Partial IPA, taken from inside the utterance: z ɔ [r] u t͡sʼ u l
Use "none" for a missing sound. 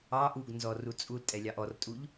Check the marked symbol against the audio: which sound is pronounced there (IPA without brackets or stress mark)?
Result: r